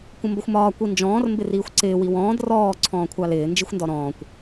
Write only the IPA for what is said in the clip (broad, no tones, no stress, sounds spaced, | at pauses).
kʷ ə̃ m b ə xʷ m ɒː kʷ i n d͡ʒ ɔ̃ː r m b ɪ r iː xʷ ǀ ɪː w i w ɔ̃ː d r ɔː ǀʰ ɔ̃ː kʷʰ ɑ l ɪː n d͡ʒ i xʷ n d ɔ ɾ ɔ̃ː kʷ